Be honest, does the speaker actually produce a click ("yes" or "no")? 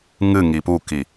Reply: no